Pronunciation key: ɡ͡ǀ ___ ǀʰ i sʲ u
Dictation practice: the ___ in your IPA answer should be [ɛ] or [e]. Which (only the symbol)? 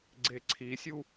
e